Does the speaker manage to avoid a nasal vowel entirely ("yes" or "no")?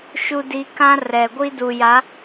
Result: no